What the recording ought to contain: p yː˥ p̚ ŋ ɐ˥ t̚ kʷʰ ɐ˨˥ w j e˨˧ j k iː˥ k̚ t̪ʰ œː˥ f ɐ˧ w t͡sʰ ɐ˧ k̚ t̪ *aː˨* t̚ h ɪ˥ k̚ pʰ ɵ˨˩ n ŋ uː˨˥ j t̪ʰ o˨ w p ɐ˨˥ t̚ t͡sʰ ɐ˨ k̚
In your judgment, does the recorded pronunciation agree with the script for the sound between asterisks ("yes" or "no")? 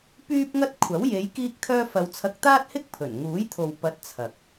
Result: no